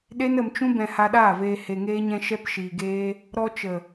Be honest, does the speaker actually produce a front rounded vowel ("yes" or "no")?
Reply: no